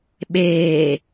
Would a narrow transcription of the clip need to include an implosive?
yes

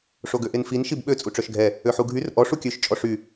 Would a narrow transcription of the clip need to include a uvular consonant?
no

